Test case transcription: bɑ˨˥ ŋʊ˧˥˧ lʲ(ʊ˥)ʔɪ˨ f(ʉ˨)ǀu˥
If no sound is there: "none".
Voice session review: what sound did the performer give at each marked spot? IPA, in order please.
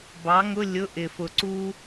ʊ˧˥˧, ʊ˨

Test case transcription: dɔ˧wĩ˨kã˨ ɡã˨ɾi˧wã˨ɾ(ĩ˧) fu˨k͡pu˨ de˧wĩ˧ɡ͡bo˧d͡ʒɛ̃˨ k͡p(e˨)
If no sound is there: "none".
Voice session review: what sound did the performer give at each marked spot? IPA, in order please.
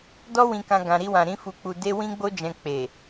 ĩ˧, e˨

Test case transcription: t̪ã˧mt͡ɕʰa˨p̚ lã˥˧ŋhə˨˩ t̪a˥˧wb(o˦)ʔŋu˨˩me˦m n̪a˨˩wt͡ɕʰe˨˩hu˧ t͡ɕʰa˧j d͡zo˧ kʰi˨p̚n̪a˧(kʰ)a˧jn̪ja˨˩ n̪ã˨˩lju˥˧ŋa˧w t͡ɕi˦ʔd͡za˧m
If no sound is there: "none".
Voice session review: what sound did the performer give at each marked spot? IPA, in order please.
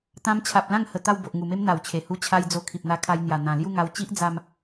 o˨, kʰ

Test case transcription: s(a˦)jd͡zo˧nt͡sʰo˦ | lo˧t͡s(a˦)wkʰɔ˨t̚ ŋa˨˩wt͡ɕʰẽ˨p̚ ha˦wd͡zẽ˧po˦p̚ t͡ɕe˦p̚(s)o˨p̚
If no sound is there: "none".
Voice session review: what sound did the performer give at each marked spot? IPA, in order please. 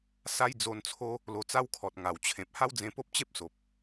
a˦, a˦, s

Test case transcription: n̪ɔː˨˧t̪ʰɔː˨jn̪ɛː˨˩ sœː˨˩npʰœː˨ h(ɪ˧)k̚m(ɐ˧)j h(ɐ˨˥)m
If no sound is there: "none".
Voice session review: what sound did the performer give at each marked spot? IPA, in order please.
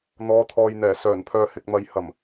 ɪ˧, ɐ˧, ɐ˨˩

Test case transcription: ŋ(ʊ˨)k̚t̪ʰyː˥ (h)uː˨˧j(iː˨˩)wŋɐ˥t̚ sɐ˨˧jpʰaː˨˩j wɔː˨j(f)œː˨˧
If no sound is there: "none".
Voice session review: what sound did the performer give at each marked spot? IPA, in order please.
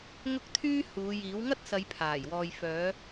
ʊ˥, h, iː˨˥, f

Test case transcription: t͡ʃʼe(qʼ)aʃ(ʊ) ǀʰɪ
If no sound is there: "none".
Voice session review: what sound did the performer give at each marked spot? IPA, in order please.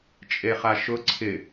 χ, ʊ

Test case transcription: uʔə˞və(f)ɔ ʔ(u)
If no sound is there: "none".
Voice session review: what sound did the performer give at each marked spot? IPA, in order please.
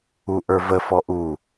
f, u

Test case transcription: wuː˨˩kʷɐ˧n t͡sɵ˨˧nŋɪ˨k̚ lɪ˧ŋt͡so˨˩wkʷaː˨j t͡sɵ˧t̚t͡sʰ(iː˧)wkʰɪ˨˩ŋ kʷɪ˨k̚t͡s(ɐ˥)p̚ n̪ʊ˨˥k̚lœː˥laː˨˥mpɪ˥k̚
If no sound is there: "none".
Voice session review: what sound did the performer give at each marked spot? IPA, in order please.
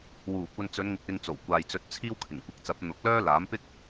iː˥, ɐ˨˥

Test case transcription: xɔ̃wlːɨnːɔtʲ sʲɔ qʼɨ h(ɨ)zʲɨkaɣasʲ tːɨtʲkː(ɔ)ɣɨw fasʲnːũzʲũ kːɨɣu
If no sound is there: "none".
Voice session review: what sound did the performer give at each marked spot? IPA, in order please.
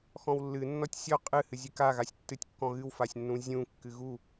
ɨ, ɔ̃

